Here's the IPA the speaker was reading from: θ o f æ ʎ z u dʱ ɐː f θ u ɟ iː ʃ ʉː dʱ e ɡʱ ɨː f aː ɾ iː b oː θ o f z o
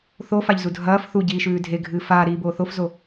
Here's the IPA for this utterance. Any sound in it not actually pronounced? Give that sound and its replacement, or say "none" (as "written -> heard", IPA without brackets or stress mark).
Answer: æ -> a